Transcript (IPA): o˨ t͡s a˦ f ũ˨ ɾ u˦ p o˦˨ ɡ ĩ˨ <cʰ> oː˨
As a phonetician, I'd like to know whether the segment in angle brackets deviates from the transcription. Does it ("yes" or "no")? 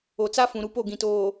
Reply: yes